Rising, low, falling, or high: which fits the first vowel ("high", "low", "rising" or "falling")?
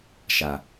low